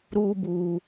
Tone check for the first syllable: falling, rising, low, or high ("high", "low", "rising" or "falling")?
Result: high